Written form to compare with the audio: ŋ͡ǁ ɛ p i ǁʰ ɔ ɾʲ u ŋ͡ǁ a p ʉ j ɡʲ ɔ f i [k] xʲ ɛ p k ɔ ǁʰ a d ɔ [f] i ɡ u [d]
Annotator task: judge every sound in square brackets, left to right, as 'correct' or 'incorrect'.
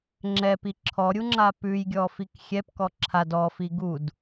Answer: correct, correct, correct

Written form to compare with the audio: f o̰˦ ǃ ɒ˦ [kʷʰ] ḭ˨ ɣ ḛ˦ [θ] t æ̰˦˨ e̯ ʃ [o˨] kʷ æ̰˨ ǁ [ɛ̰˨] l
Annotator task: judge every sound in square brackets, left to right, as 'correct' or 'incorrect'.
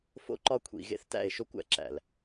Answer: correct, correct, incorrect: o˦, incorrect: æ̰˨

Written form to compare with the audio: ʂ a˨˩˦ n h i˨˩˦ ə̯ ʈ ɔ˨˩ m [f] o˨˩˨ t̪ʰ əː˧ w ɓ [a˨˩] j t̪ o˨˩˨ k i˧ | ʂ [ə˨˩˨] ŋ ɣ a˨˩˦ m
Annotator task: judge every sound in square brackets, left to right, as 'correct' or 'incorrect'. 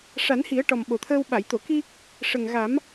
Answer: incorrect: ɓ, incorrect: a˨˩˨, incorrect: ə˨˩

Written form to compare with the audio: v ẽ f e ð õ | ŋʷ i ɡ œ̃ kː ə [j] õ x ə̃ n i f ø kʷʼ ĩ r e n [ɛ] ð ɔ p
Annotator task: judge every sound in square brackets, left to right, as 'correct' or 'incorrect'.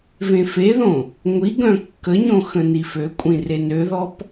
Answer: incorrect: ɲ, incorrect: ø

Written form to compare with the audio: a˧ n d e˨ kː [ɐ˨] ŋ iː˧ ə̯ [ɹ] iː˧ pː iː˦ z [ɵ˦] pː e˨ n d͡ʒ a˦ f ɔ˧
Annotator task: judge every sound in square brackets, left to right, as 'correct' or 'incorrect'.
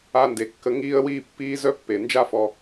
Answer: incorrect: ə˨, incorrect: w, incorrect: œ˦

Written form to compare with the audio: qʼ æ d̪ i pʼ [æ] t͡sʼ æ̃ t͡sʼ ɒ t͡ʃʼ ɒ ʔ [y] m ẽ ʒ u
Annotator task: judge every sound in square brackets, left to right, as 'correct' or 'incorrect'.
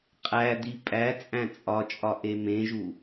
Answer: correct, incorrect: e

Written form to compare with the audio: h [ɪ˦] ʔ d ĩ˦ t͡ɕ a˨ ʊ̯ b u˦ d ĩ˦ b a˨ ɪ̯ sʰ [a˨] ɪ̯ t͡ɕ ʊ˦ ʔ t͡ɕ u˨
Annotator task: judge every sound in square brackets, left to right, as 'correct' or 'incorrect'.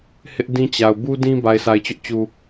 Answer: correct, correct

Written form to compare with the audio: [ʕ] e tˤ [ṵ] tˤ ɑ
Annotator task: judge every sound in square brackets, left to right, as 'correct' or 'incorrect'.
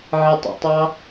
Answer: correct, correct

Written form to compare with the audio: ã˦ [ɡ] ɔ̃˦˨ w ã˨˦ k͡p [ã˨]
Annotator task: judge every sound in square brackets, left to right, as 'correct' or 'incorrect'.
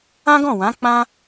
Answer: correct, incorrect: ã˦

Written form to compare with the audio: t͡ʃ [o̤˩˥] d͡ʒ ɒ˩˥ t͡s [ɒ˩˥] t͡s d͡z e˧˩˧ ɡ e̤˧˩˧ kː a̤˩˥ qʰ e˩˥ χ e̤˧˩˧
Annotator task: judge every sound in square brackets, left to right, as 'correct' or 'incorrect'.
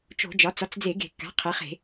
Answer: incorrect: o̤˧˩˧, correct

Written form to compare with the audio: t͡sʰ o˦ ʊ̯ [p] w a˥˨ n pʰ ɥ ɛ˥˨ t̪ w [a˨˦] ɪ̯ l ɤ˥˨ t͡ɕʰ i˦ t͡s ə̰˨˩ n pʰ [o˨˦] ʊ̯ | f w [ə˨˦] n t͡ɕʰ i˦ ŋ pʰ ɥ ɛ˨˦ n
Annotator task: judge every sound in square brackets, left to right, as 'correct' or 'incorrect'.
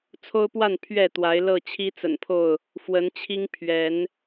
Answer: correct, correct, incorrect: o˥˨, correct

